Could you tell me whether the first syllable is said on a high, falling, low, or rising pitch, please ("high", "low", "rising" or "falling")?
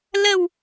low